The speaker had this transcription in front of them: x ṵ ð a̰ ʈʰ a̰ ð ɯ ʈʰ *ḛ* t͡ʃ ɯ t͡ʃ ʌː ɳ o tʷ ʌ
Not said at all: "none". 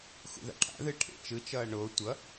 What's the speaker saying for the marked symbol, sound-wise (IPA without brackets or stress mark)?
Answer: ḛ